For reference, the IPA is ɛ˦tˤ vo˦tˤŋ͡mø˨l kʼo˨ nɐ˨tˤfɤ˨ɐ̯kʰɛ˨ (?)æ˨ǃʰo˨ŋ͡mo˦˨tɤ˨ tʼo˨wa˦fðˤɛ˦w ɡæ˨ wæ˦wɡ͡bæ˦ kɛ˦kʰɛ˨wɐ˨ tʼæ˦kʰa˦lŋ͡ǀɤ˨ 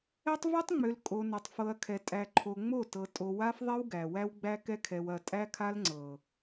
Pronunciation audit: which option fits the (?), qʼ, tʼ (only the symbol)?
tʼ